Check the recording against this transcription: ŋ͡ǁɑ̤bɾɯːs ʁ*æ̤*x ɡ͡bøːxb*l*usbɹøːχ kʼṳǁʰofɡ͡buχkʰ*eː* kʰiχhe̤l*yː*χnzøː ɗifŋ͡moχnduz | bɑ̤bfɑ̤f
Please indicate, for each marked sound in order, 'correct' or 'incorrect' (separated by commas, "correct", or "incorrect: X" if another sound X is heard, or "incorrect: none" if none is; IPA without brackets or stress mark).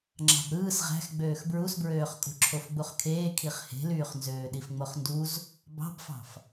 correct, incorrect: ɹ, correct, correct